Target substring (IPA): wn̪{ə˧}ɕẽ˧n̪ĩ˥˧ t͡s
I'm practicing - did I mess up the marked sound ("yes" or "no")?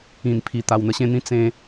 no